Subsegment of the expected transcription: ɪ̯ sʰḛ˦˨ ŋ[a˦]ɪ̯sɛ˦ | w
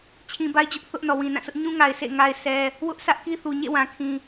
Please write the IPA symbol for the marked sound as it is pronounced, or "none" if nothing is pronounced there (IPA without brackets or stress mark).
a˦